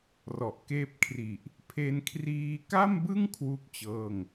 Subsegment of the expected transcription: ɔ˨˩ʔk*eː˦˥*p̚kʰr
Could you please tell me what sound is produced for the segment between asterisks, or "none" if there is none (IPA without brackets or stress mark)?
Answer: eː˦˥